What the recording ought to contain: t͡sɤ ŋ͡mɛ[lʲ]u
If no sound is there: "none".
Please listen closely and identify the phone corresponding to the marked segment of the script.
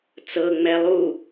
lˠ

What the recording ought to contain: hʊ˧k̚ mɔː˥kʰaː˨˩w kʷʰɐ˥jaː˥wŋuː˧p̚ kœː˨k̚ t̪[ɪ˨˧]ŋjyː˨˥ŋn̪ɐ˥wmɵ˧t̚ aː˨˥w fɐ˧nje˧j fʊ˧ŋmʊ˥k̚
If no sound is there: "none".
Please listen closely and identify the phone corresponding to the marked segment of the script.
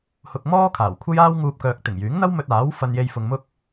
ɪ˨˩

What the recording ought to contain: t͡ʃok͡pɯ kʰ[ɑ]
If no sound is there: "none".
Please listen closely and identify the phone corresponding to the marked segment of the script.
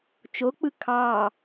ɑ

